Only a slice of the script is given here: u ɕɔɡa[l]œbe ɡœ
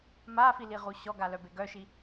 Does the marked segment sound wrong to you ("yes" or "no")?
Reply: no